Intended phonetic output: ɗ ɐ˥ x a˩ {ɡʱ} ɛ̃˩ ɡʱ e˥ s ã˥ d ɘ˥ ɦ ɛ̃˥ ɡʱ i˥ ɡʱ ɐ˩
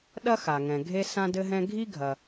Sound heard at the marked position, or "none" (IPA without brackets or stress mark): ŋ